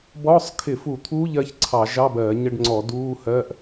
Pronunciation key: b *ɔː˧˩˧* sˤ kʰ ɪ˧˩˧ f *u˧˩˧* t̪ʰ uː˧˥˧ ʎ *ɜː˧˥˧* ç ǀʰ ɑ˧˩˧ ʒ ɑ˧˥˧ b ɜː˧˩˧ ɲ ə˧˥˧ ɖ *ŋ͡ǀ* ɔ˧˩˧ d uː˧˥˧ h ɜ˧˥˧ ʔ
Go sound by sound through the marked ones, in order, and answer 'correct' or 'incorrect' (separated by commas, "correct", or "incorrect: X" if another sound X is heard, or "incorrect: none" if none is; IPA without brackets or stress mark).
incorrect: ɔː˧˥˧, correct, incorrect: ɜ˧˥˧, correct